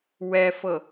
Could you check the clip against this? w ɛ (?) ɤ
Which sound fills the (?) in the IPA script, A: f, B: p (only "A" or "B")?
A